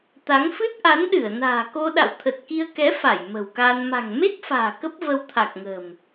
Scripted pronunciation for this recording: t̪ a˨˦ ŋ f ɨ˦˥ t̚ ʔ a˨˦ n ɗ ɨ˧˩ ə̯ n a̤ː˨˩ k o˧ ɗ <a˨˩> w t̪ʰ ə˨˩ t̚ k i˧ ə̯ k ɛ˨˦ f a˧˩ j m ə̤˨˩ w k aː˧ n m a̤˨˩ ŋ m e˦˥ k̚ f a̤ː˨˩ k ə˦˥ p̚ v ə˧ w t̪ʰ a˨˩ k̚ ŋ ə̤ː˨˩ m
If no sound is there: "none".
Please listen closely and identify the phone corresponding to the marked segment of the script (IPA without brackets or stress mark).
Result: a̰˧˨